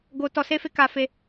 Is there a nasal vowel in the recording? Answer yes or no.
no